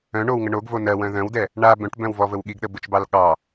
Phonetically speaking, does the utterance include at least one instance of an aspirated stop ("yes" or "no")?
no